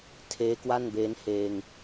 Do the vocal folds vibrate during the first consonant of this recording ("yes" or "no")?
no